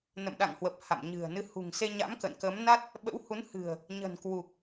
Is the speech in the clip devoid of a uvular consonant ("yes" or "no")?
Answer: yes